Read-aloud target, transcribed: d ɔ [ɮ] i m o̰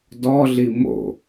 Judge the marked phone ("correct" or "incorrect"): correct